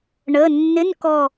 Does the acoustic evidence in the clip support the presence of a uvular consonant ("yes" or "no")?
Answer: no